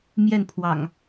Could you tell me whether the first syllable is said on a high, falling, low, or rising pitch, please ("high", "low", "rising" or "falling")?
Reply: falling